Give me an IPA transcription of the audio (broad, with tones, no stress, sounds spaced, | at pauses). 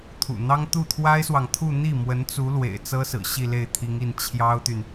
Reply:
t̪ʰ ṵ˨˩ n̪ ɑ˥ ŋ t̪ u˥˩ t̪ʰ w a˥ ɪ̯ s w ɑ˨ ŋ t̪ʰ u˥˧ n̪ i˥˩ m w ə˧˥ n t͡s u˧˥ l w ḛ˨˩ ɪ̯ t͡s ɤ˥ s ɹ̩˨˩ ɕ i˥˧ l e˥˩ ɪ̯ t̪ʰ i˧˥ ŋ i˥˩ n t͡ɕʰ j ɑ˥ ʊ̯ t̪ y˨ n